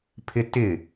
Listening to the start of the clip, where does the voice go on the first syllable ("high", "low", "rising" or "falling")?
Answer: high